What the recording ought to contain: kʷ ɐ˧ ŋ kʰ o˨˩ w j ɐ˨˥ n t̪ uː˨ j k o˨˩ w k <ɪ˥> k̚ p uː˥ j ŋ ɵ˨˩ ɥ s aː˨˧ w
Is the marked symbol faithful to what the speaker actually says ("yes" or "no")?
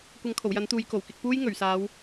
no